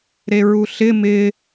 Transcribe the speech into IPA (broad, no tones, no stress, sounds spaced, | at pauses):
ɾ e ɹ u ɬ ɪ m ɪ